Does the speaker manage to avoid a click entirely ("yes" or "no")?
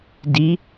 yes